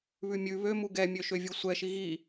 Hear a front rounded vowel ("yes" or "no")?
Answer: yes